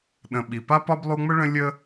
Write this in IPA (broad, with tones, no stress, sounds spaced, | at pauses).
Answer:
ɗ ə̃˨ ɓ i˩ p a˥ p ɒ˥ b lˠ u˦ ŋ͡m ə˥ ɭ ə̃˦ lʲ ə˥